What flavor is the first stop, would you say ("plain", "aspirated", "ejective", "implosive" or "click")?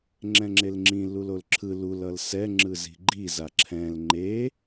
click